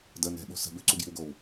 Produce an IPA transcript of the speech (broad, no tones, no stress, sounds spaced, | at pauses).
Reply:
d ə n ɛ̤ ɓ o̤ s ə̤ b ʉ ǀ u ɡ j i̤ w ɡ o w